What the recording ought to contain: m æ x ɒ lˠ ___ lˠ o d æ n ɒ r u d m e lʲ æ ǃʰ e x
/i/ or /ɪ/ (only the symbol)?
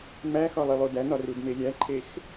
i